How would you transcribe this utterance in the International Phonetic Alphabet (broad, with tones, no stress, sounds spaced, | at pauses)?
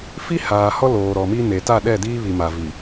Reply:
f i˦ h aː˨ h ɔ˦ l oː˨ ɾ ɔ˨ m i˦ n e˨ t a˦˨ ɗ ɛ˦˨ d iː˦ β i˨ m a˨ v i˨